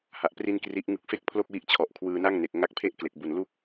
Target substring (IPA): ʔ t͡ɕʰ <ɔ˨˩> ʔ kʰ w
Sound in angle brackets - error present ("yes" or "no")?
no